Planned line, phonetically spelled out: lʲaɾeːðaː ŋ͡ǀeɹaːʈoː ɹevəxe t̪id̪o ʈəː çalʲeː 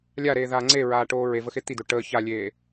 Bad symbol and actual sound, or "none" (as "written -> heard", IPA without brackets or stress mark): none